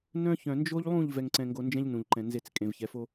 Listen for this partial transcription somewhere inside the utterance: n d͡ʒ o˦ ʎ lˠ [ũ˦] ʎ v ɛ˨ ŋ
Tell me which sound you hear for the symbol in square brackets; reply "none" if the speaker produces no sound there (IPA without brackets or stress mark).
ũ˦˨